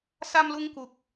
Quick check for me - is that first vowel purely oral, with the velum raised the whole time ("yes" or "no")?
yes